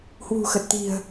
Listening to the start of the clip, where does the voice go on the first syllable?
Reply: low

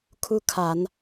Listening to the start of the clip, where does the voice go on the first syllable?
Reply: high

